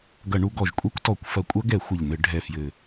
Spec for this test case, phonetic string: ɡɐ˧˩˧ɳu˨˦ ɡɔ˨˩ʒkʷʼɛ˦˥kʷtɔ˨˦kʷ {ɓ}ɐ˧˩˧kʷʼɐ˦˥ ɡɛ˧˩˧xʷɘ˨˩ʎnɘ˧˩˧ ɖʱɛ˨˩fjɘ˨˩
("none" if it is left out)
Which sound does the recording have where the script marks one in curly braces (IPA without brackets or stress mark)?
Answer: f